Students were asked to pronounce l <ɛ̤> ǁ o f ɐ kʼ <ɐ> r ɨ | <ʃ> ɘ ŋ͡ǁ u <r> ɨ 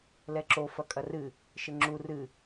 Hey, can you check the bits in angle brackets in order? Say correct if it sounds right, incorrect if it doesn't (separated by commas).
incorrect, correct, correct, correct